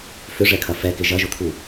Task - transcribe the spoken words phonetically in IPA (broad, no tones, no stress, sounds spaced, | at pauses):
f ʏ ʐ ɛ kʰ ɐ f ɛ k ɪ ʒ ɐ ʒ ʊ t̪ʰ u